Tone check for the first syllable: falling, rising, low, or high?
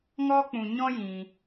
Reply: high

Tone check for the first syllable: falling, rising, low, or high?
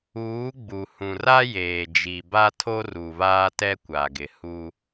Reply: rising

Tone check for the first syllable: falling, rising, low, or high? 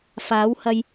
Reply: rising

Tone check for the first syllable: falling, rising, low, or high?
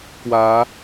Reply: rising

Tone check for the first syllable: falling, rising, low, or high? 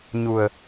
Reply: low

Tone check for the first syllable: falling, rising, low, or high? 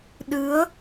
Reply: rising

